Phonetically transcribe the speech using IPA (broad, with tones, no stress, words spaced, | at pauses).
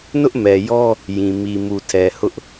nʊ˦ʔmɛ˨jɔ˦ | jĩ˨ mi˨ mu˨tʰɛ˨ hʊ˦ʔ